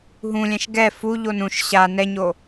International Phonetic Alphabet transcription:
ɦũlʲɛ̃ʃ ɡɛ fu ʎonũʃ ɕa nɛɲo

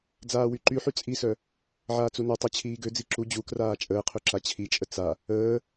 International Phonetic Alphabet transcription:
d͡zaːwyǃyħy t͡sʼisœ | ʕaːt͡sunetˤɛ t͡ɕʰiːɡød͡zi ǁu d͡ʑu kraːt͡ʃʼəːqʰø ǁat͡ɕʰit͡ʃʼə t͡sa | əː

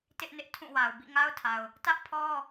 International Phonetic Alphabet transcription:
tɪ˦ʔnɪ˦ʔ tʰũ˦˨wa˨ʊ̯ bḭ˦˨ŋa˦ʊ̯tʰa˨ʊ̯ | tä˦ʔpʰɔ˦

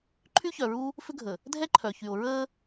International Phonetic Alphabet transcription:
ǃʰy˦çœ˨ɹu˦ | fʏ˦ɡʱə˨ | dʱɛ˦ǃʰœ˨çy˨o̯ ɹəː˦

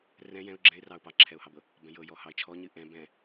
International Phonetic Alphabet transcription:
rɛ̃ jɛ̃ʊ̯ ɡ͡ǁɛ̃ɪ̯rɑʊ̯ pɑǁʰɛʊ̯hɑbɤ | bɛ̃jɤjɔhɑɪ̯ t͡ʃʰɔɲɨ ʔɛ̃ bɛ̃

